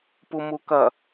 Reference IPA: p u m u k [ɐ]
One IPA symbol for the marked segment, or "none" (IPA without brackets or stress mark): ɐ